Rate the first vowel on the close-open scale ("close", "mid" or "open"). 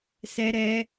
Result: mid